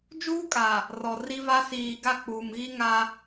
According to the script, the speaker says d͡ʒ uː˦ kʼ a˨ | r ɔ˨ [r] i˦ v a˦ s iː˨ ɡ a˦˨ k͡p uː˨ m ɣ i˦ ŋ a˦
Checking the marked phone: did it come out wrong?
no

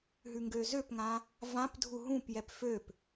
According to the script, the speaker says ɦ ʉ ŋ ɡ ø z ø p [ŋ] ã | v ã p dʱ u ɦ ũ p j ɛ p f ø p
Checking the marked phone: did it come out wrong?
no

